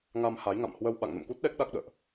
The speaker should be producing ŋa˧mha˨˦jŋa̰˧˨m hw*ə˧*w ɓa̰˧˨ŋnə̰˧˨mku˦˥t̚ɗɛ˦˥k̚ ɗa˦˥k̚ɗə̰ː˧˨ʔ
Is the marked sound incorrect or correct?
correct